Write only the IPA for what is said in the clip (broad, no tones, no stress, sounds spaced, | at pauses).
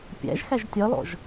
pʲ æ̰ ʒ x æ ʒ tʲ ɒ l ɔ̰ ʒ